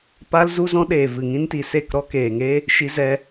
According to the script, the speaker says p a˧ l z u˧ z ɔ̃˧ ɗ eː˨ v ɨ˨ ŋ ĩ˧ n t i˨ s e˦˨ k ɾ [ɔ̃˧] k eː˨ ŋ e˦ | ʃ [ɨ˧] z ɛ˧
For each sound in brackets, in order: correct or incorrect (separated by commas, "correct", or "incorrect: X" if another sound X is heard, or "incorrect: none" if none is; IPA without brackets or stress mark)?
incorrect: ɔ˧, incorrect: i˧